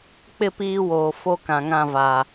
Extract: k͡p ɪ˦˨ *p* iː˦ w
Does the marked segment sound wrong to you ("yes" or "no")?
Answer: no